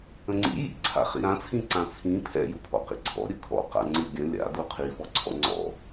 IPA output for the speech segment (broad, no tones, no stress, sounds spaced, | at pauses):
ə̃ ŋ͡ǀ ḭ j ḭ ǀʰ a̰ χ ḭ ɾ ã t͡sʰ ĩ ǀ ã t͡sʰ ĩ pʰ ɛ̰ j u pʰ ɔ̰ q ḭ ǀʰ ɔ̰ ɾʲ ɯ kʰ ɔ̰ q a̰ ŋ͡ǀ ɯ ɡʲ ə̃ lʲ a̰ d u qʰ i f ɔ ǀʰ ɔ̰ ŋ͡ǀ ɔ̰